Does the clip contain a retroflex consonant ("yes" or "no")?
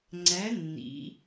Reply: no